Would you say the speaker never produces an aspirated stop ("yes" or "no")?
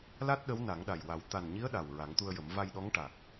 yes